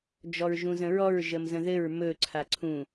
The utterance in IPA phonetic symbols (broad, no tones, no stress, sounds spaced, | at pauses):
d͡ʒ ɔ ɹ ʒ ũ z ə̃ ɹ ɔ ɹ ʒ ə m z ə̃ ð ɘ ɹ m ɵ ǀʰ a ǀʰ ũ